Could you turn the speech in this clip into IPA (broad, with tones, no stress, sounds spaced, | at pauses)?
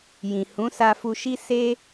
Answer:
j ĩ˨ h ũ˨˦ s a˧ f u˧ ʃ i˦ s e˦